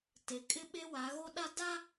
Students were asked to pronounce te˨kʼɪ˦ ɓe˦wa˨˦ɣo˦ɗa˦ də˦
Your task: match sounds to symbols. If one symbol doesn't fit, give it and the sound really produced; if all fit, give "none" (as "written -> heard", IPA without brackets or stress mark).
ə˦ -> a˦